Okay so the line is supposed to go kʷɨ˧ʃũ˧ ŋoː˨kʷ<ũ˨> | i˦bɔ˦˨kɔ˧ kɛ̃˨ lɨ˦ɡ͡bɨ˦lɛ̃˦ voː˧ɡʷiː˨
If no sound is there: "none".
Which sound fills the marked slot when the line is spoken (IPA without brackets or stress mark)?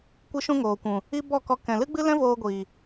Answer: ũ˨